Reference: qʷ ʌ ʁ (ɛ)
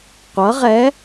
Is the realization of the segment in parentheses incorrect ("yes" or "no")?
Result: no